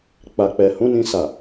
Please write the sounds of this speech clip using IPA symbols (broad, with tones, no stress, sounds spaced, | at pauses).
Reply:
k͡p a˨ k͡p ɛ˨ h ũ˨˦ n ĩ˧ s a˨